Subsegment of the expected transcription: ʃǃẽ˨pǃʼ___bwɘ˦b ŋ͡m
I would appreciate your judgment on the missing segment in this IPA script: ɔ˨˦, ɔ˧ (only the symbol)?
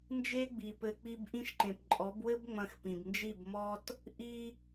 ɔ˨˦